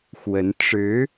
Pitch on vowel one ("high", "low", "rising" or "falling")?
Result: rising